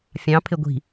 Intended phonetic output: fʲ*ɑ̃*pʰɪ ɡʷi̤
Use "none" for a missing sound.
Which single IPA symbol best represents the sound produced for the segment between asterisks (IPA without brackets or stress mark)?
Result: ɑ̃